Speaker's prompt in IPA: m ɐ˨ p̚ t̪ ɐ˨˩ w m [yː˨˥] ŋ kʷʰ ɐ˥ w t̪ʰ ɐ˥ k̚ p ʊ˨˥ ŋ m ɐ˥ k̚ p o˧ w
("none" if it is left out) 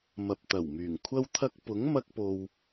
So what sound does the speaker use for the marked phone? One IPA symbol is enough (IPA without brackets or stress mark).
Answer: yː˨˩